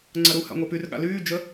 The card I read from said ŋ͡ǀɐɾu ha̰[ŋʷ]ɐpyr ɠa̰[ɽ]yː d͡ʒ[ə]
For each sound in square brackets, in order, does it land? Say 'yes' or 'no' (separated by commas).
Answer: yes, no, yes